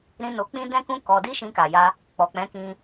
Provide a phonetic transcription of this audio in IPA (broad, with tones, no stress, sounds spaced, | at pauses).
ɾ ĩ˧ n o˧ k͡p ĩ˦ d ɛ̃˦ k ũ˦ k ɔ˧ d i˦ ʃ ĩ˧ k a˨ j a˧ | k͡p ɔ˨ k͡p ɛ̃˨˦ k ĩ˧